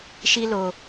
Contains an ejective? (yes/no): no